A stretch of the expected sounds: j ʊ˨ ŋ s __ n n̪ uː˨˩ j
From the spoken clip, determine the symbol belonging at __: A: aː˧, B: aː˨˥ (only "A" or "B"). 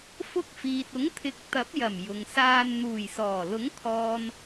A